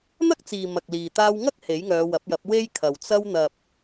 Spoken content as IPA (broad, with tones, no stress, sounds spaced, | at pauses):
n̪ ɐ˥ k̚ t͡s iː˨ m ɐ˨ k̚ l iː˨ t̪ aː˧ w ŋ ɐ˥ k̚ h e˨˥ j ŋ œː˨˧ w ɐ˨˥ p̚ j ɐ˨˥ p̚ w e˥ j kʰ ɐ˨ w t͡s ɐ˧ w n̪ ɐ˨ p̚